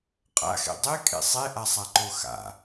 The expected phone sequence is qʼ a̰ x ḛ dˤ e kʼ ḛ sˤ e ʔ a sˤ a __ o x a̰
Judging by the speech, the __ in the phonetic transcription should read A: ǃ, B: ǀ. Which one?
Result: A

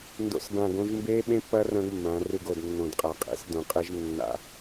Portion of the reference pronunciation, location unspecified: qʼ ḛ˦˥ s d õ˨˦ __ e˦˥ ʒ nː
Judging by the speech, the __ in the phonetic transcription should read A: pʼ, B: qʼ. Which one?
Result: B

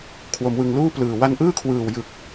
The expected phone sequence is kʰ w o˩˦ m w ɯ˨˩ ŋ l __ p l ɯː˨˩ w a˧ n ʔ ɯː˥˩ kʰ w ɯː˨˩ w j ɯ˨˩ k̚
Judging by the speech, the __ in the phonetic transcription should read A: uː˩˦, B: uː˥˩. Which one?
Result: B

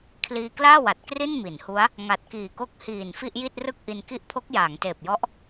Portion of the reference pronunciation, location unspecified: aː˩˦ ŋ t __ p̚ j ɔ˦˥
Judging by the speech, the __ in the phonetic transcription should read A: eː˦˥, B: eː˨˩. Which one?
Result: B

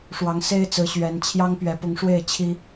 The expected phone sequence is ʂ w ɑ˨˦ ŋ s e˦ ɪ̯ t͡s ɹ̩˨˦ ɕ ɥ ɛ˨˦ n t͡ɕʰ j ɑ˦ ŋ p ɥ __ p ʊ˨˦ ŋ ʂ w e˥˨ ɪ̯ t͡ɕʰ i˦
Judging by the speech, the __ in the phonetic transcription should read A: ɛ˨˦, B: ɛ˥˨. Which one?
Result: A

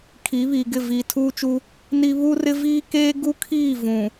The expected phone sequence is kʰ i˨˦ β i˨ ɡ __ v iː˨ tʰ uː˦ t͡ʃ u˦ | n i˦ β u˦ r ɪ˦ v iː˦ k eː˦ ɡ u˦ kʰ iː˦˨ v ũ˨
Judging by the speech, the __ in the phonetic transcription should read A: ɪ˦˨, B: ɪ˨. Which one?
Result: A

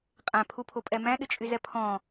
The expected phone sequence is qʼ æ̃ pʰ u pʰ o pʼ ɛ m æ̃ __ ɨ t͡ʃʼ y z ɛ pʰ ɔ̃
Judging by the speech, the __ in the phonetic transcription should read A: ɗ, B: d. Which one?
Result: A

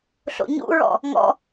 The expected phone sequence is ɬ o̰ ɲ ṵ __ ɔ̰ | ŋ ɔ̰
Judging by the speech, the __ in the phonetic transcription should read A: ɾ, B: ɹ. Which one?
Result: B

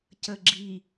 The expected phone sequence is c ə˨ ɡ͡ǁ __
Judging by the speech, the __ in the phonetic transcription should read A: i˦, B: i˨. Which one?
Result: B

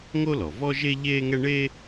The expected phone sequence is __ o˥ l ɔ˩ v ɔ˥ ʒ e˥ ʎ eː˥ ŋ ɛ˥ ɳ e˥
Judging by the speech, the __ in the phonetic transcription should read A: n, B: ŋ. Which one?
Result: B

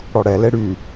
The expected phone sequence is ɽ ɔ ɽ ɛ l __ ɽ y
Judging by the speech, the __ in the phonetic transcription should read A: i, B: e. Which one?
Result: B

